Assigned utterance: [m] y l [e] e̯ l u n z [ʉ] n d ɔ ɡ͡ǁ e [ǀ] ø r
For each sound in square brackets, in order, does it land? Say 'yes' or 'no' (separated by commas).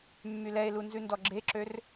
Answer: no, no, yes, no